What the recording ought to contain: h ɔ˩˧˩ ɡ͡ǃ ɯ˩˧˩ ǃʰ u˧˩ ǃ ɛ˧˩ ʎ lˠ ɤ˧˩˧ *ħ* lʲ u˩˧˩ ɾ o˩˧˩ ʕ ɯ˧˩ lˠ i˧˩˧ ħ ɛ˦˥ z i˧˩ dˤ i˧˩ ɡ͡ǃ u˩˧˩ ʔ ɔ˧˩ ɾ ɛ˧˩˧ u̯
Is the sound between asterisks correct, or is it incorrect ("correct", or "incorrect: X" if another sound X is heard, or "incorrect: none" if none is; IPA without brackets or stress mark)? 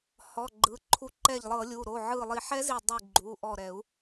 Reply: incorrect: none